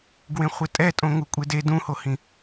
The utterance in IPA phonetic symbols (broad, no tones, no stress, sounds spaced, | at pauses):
ɡ w ẽ χʷ e tʼ ɛ tʼ õ ŋ u kʷʼ e d e d ũ h o h ĩ